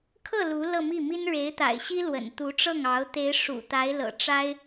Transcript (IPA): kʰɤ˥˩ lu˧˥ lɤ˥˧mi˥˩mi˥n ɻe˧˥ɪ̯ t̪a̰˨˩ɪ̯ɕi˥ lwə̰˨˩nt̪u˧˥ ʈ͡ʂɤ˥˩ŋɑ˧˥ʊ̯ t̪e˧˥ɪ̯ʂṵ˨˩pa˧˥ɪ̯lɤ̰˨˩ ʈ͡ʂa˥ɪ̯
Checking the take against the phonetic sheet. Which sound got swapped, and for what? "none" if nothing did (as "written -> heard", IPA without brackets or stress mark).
p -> t̪